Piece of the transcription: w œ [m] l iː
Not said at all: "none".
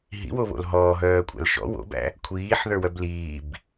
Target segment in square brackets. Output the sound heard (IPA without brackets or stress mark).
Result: b